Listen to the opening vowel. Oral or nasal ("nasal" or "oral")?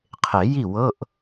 oral